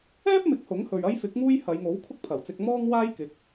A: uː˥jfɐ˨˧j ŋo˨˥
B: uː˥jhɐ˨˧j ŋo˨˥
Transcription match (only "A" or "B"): B